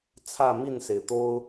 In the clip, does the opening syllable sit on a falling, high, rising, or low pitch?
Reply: falling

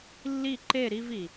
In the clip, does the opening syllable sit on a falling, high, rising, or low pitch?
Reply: falling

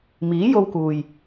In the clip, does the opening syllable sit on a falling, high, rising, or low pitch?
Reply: rising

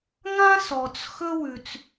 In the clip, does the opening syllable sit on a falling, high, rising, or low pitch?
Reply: high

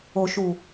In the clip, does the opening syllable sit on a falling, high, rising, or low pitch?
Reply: low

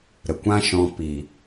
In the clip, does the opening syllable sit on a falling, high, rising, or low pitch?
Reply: low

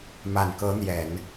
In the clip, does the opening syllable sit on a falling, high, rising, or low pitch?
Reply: low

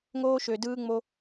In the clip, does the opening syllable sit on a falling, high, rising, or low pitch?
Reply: high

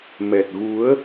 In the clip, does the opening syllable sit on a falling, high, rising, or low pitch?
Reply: low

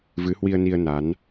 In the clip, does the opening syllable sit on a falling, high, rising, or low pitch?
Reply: rising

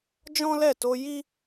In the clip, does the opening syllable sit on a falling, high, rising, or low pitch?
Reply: high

